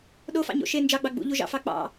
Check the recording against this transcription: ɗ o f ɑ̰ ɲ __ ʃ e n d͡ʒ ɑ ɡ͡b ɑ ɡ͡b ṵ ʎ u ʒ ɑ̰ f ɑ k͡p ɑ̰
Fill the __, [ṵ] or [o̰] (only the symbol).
o̰